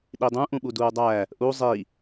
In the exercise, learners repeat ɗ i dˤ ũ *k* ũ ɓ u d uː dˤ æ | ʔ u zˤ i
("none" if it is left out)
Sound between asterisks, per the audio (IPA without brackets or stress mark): ʔ